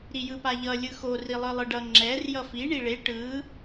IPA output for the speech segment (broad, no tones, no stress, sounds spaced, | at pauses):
ɾ i j ɯ p a ʎ ʌ lʲ ɯ x o r i lˠ ɯ lˠ ɯ ɖ ʌ ŋ͡ǁ ɛ r j ʌ f i ɳ i ɭ e ʈ ɯ